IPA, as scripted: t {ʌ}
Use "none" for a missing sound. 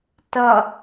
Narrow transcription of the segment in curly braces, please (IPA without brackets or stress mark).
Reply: ʌ